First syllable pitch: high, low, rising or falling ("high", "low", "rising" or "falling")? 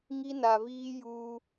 high